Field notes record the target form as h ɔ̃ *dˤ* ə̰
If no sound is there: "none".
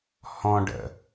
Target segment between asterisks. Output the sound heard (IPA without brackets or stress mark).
ɖ